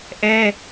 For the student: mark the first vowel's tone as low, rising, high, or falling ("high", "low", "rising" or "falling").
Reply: high